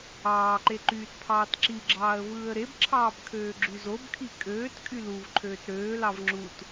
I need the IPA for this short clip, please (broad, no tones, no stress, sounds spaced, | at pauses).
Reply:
ɑː ǃ e ǃ yː t pʰ ɑː t ǁ i ɡ͡ǁ ɑː ə̯ v ɯː ə̯ ɾ e b ǁʰ ɑː b kʰ øː ɡ͡ǁ y z o b kʰ i kʼ øː t kʼ y l u v ǃʰ øː t ɾ øː l ɑ v ŋ͡ǁ u t